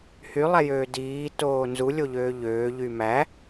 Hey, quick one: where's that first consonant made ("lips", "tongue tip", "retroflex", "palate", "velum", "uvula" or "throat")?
throat